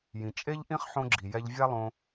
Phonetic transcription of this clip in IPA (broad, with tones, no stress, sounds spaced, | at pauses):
j ĩ˩ t͡ʃʼ e˥ ʎ ʔ ĩ˥ χ ħ õ˧ ɡ͡ǁ i˩ j ɛ˧ ʎ vʲ a˥ lˠ õ˧